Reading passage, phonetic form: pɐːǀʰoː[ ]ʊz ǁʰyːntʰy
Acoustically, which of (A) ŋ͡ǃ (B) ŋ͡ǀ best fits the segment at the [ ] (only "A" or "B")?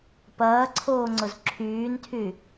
B